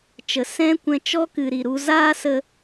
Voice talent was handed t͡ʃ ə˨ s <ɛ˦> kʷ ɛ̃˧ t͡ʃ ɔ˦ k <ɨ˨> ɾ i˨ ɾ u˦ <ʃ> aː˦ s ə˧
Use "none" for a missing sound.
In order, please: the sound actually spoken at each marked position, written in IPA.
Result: ɛ̃˦, ɨ˨, z

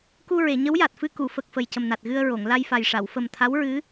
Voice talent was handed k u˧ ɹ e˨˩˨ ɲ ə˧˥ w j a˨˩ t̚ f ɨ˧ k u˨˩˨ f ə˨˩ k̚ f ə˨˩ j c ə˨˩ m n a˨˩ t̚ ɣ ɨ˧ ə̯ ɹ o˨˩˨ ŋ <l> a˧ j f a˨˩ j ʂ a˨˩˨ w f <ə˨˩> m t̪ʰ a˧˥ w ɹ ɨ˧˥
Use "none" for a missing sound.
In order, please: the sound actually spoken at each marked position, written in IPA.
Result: l, ə˨˩

